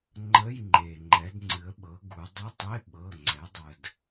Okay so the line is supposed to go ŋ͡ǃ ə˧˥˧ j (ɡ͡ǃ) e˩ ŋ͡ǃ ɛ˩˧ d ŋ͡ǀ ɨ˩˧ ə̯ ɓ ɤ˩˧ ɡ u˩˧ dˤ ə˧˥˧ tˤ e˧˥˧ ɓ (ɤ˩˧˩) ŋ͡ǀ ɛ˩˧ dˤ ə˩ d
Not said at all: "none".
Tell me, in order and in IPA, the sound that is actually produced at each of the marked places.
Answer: ŋ͡ǃ, ɤ˩˧˩

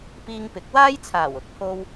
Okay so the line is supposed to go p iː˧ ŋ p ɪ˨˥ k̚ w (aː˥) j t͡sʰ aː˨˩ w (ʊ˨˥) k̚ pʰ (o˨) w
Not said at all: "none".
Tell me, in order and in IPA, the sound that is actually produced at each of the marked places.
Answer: aː˥, ʊ˨˥, o˧

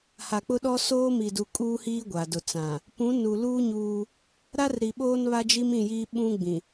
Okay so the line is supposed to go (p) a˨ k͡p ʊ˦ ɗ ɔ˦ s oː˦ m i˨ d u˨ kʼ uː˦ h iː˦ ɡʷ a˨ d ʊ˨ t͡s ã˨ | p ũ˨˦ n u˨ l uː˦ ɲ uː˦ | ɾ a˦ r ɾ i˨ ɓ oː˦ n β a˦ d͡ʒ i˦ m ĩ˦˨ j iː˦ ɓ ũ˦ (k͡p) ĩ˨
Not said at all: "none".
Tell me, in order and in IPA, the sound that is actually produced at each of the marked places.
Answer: h, ɡ͡b

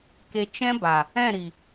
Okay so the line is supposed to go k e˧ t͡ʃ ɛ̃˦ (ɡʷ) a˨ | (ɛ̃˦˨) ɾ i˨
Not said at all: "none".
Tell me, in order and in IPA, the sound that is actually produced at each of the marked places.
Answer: b, ɛ̃˦˨

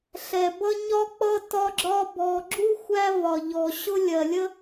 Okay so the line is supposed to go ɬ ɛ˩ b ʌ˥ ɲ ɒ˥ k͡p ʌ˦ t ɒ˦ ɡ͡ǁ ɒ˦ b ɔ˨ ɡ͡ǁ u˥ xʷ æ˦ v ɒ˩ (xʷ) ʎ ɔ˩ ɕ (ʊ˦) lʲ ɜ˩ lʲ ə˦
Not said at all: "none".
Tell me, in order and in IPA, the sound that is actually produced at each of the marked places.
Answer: none, ʊ˦

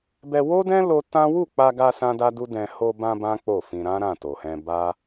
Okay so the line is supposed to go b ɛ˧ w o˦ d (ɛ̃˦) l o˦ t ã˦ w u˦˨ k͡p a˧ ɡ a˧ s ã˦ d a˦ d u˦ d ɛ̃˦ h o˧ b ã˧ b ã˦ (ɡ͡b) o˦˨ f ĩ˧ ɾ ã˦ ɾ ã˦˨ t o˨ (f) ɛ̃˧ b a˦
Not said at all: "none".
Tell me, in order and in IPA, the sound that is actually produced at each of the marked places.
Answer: ɛ̃˦, k͡p, h

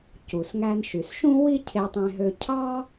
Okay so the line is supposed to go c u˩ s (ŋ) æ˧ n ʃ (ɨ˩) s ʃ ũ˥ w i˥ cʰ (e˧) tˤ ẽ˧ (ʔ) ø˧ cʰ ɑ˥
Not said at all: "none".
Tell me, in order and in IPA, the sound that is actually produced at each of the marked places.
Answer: ŋ, y˩, e˧, ɦ

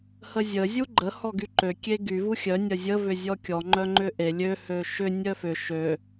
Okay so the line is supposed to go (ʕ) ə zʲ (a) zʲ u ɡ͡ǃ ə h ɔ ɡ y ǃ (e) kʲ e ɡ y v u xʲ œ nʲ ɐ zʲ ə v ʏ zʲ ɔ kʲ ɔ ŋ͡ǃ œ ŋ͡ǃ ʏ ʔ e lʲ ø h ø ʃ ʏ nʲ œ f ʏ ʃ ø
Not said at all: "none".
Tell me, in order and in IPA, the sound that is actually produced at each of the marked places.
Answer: h, ə, ø

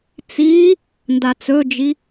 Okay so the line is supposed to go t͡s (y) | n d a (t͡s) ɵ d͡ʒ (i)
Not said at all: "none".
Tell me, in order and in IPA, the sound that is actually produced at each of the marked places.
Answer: i, t͡s, i

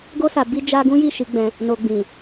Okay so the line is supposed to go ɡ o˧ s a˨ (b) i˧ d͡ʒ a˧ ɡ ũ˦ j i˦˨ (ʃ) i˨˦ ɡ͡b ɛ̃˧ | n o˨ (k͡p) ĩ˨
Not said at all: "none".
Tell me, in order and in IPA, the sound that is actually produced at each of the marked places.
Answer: b, ʃ, ɡ͡b

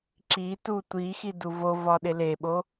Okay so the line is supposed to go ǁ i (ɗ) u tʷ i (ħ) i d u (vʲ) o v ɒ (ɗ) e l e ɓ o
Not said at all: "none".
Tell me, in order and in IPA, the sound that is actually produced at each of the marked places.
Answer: t, x, v, ɗ

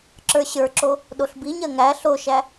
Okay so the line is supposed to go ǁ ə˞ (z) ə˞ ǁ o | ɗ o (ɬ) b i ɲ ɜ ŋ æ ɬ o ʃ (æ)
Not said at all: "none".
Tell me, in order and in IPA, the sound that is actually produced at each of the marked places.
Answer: ɕ, ɬ, æ

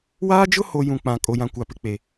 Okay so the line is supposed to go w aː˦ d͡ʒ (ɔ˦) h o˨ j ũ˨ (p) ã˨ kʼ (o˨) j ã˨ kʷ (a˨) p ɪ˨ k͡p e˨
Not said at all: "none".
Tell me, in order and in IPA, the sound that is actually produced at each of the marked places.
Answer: ʊ˦, k͡p, o˨, a˨

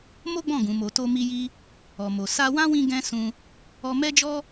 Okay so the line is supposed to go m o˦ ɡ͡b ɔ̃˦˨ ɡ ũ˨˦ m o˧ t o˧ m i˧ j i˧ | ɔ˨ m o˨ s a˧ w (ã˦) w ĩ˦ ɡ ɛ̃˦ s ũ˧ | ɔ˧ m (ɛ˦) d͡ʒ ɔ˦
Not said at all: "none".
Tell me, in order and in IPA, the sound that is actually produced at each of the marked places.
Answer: ã˦, ɛ˦

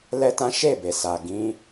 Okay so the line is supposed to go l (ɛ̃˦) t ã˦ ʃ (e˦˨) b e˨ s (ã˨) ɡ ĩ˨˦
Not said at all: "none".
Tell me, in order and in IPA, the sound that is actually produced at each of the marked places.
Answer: ɛ˦, e˦˨, a˨

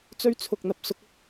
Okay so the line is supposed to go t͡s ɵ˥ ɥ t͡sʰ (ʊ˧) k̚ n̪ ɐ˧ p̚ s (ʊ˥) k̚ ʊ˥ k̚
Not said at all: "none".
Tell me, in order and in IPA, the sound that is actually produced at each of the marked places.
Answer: ʊ˧, ʊ˥

